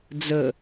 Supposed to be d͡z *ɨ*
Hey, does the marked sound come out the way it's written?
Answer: no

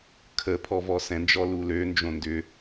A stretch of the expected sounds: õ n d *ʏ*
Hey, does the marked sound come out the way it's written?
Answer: yes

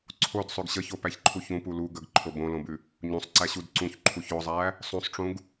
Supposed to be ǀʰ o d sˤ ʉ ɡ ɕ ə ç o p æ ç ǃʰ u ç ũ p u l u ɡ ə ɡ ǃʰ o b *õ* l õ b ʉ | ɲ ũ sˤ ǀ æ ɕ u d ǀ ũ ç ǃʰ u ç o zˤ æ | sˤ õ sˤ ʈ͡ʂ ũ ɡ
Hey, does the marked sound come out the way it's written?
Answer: yes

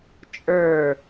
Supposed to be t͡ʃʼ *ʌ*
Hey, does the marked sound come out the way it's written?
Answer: no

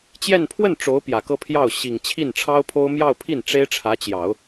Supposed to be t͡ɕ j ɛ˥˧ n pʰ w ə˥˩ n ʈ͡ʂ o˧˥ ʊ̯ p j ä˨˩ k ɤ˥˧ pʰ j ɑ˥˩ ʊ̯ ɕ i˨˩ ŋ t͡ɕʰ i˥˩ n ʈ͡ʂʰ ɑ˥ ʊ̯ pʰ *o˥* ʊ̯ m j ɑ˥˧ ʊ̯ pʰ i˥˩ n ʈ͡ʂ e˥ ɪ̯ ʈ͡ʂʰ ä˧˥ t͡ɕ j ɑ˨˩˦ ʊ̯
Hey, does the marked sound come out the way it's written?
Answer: yes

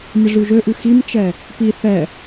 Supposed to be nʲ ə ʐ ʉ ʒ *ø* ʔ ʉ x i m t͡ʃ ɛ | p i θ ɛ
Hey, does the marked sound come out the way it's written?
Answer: yes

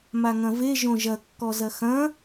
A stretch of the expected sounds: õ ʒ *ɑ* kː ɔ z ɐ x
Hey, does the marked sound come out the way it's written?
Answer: no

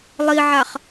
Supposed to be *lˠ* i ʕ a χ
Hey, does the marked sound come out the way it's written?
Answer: yes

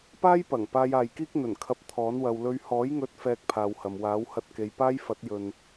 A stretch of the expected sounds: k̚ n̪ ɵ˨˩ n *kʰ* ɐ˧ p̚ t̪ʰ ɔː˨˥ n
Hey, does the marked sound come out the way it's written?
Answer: yes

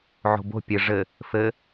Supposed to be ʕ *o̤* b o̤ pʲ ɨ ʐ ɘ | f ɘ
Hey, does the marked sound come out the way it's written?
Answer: yes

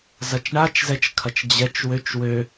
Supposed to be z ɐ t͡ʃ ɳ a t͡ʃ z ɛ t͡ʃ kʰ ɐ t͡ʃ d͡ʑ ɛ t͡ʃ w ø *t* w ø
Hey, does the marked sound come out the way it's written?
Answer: no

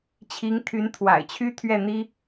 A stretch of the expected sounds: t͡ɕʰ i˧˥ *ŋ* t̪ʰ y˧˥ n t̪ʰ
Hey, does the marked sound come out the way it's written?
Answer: yes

